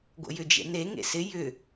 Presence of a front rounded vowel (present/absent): present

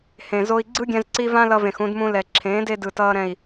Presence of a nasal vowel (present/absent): present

